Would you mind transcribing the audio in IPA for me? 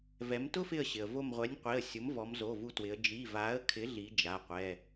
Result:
vɛ˩˧mtʊ˦fɪ˧˩ə̯ ɕɪ˩ə̯vo˧˩mʁʷɛ˩˥nʲqʷi˩˧˩ə̯ sʲʊ˩˥m vɔ˩˧mzo˩˧˩vu˧˩twɪ˩˧ə̯ d͡ʒi˩˧˩va˩˥ə̯kʰɪ˩˥ ɮi˩˥ d͡ʒa˩˧˩qʷɛ˩˧˩

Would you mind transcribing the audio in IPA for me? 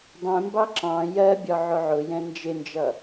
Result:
dˤɛ̃mbɑ ǁɑ̃ jɜbʲɒ ʕʊʕʊjɛ̃ nd͡ʒɪnd͡ʒʌ

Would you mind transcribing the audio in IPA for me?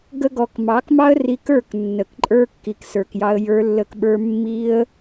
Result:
ɡə˦ɡɔ˧k mɑ˨˦kmɑ˦ə̯ri˧ kə˞˦˨k nːə˨kǃʼə˞˧ kːi˨ksə˞˨kjɑ˧ə̯ jə˞˧lːə˧k ɓə˞˧ mːi˧ə̯

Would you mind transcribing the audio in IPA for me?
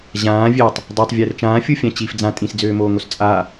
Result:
ʑãː vʲøtˤ | dˤøtˤ vʲɘːrt͡ʃãːfʲu fʲãt͡ɕif d͡zã tʼĩsd͡zøːmoːŋos t͡sʼa

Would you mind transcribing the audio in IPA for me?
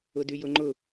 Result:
ʊdyjʊŋ͡ǃʊ

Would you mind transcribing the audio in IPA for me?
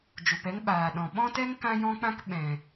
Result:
d͡ʒu˨pɛ˦ŋɓaː˨ ɗɔ̃˨ ɓɔ̃˦tɛ˦ŋ kã˦jɔ̃˦k͡pã˦k ɓɛ̃˨

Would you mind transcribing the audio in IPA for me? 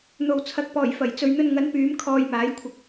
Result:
n̪o˨wt͡sʰɐ˨˥k̚pɔː˨˩jfɐ˨˩j t͡sɵ˨ɥn̪ɵ˧n ŋɐ˨˥npyː˨˥m kʰɔː˧jmaː˨˥jkʷʰɪ˧k̚

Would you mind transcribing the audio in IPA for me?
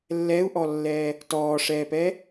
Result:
lːɛu̯ʔɔlːɛː | tɔːʂɛːpɛ

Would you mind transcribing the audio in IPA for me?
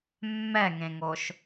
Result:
mːɛŋẽŋoʃ

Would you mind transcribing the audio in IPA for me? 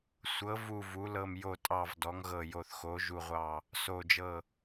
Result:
sʷɤ˩˧vu˨˩ vu˩˧lɤ˨˩mjo˨˩tʼɑ˨˩v dɔ˩˧ŋɣɤ˨˩jo˨˩θ xo˩˧ʒu˨˩ʁʷɑ˨˩ | so˨˩d͡ʒɤ˨˩

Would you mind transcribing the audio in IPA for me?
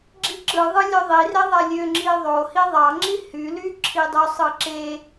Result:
ɡ͡ǁiǁɯðˤɯlʲø ðˤire ðˤælʲø ŋ͡ǁiðˤo hiðˤɑŋ͡ǁi hyly ǁʰidˤysˤɯ ǁe

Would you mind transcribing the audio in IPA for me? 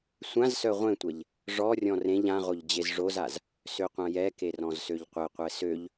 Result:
sʷãzsœ ʁʷẽtʷɛʎ | ʐɔrʲɔ̃ rẽʎ ãʁoʎ d͡ʑezʐozaz | søqʷãjɛke rɔ̃zsøʎqʷeqʷɛ søʎ

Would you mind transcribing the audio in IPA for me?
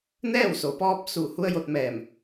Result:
nɛː˥˨wso˩pɔː˧p̚ su˧˩ hu˧˥ə̯jo˧t̚mɛː˧˩m

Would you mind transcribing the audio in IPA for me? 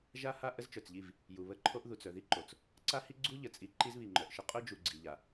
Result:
ʒa˦ ha˦ ʔə˦zt͡ʃœ˨t͡sʎi˦˨v | ju˨βə˦ǃʰo˦ʔ ðu˨t͡s œ˨ði˦ǃo˨t͡s | ǀa˦hi˦ ɡ͡ǀu˦ʎə˨t͡sʼi˨ ǃi˦zβi˨ŋ͡ǃœ˨ʔʃə˦ qʼœ˦d͡ʒu˨ɡ͡ǀi˨ʎa˨

